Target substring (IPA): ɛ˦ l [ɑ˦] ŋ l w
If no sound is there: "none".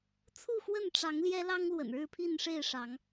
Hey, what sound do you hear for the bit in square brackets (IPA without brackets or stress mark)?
ɑ˦